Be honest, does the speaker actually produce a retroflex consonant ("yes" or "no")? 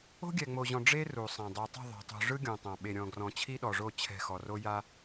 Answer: yes